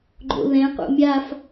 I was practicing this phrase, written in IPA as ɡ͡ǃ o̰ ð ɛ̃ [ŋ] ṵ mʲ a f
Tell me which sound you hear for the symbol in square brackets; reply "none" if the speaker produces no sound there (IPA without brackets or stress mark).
q